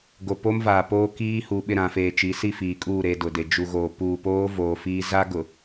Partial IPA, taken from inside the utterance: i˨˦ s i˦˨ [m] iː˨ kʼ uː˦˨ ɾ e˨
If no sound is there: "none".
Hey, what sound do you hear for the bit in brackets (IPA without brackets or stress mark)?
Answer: f